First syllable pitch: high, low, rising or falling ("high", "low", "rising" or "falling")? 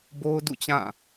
high